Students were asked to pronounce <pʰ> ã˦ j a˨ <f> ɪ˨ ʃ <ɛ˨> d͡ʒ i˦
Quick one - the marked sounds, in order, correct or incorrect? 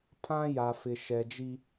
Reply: correct, correct, correct

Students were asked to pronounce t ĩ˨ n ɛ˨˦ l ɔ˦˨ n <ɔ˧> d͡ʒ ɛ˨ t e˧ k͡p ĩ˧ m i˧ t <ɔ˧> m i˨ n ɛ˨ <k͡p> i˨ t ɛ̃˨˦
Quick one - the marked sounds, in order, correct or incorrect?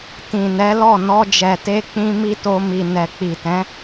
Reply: correct, incorrect, correct

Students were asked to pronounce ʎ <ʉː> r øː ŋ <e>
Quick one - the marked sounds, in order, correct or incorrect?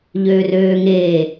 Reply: incorrect, incorrect

